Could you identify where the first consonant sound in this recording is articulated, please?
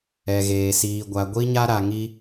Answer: velar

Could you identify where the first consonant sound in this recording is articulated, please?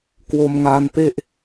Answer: velar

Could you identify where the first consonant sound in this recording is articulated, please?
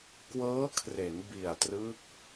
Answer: velar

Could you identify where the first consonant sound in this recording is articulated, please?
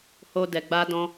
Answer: glottal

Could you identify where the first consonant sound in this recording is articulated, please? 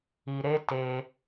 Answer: alveolar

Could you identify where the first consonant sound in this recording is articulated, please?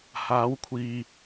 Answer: glottal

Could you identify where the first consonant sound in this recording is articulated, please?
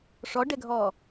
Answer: retroflex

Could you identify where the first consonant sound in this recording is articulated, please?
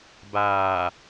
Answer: labial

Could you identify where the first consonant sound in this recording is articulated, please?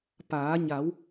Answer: labial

